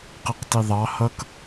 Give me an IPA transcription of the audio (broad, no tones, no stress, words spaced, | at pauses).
qɪqtiðˤɑ hʌk